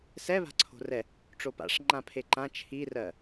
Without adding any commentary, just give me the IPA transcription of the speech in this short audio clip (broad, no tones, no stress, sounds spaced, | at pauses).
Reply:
s ɛ β a̤ ǀʰ o̤ r ɛ | ʈ͡ʂ o p a̰ ʂ ŋ͡ǃ ã pʰ e ǃ ã t͡ʃʰ i r ɜ